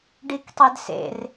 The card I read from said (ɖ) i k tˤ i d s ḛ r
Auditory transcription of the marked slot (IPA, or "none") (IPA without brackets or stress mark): ɖ